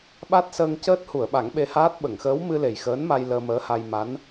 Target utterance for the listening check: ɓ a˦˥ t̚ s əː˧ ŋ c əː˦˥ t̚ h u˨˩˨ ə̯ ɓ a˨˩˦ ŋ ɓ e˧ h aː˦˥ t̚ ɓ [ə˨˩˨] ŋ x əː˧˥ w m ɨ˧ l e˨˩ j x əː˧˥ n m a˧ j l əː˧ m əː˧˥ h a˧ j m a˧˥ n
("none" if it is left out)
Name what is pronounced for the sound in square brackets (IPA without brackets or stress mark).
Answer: ə˨˩˨